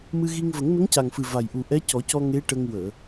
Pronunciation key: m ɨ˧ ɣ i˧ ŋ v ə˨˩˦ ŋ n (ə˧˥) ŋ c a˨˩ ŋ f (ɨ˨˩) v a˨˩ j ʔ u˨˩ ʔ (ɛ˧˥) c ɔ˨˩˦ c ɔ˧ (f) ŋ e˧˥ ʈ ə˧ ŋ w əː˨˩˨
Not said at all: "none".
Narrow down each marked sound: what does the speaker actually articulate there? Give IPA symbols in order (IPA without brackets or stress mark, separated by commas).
ə˧˥, ɨ˨˩, ɛ˧˥, none